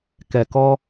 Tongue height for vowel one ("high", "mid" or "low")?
mid